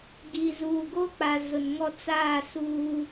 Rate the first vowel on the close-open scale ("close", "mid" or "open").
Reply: close